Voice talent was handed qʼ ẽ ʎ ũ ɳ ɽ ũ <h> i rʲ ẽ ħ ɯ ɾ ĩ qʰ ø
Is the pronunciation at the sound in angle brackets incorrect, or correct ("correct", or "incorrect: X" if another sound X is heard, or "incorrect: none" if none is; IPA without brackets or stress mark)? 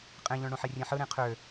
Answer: incorrect: ħ